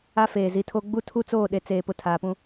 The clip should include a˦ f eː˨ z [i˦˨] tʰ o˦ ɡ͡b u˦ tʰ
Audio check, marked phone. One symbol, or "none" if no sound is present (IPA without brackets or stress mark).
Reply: i˨